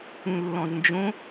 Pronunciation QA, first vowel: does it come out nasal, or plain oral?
nasal